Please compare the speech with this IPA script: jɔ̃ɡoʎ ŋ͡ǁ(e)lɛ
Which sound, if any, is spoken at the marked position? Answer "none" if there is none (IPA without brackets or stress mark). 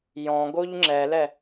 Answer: ɛ